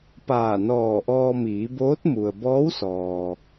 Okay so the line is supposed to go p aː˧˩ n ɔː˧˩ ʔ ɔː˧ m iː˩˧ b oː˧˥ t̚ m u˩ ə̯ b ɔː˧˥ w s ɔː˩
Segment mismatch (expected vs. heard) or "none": none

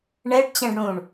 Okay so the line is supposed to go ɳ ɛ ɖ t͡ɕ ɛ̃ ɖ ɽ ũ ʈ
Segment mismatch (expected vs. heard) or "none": ʈ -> ɳ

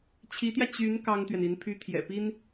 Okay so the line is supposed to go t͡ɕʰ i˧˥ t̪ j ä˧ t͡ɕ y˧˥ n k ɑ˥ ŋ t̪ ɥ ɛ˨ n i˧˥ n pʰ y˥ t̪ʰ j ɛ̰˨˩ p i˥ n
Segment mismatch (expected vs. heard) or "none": none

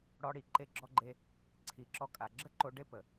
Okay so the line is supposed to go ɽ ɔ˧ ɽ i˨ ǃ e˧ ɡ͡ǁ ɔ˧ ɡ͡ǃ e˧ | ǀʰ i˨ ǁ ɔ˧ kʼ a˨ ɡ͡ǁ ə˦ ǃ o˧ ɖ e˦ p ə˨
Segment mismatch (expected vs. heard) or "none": none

